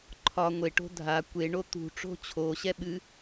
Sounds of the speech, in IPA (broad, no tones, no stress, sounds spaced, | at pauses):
ǃʰ ɒ ŋʷ e ʈ o̤ dʱ a kʷ e ɳ o t̪ ṳ ʈ͡ʂ o̤ t͡ɕʰ o ɕ ɛ ɓ ɨ